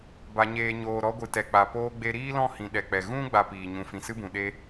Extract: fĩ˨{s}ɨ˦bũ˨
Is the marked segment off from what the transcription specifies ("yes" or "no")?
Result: no